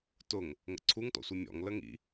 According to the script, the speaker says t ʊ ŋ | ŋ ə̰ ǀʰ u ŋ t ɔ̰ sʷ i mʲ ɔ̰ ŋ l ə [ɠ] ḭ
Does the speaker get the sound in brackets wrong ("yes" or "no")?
yes